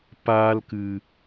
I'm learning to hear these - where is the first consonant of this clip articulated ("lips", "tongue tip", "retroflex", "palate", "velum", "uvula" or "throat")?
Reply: lips